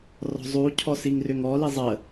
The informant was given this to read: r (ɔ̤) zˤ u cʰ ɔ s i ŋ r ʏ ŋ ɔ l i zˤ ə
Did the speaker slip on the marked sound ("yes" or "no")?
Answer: no